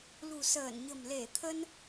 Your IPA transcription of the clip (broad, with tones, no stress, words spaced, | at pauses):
lṳ˨˩səː˧˩nɲə̤˨˩m le˧˩t̪ʰə˧n